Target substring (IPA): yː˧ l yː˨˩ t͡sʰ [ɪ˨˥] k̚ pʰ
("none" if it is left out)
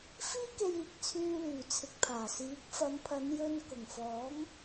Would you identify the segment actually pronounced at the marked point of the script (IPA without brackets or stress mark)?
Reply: ɪ˨